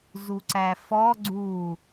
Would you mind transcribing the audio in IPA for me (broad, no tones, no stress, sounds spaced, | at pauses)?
z u ǀ æ f ɔ ɡ͡ǀ u